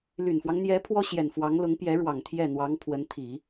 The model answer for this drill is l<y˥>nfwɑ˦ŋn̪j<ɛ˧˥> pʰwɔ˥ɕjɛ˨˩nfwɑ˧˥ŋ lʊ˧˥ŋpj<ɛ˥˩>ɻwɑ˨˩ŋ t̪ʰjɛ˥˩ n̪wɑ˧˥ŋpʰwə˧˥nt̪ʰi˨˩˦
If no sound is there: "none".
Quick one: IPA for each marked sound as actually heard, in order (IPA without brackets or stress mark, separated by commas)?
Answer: y˨˩, ɛ˧˥, ɛ˧˥